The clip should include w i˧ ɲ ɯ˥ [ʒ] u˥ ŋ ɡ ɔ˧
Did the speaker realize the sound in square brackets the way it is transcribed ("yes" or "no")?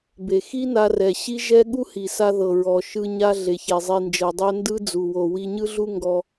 no